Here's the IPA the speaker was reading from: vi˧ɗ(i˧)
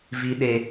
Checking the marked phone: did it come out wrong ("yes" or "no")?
yes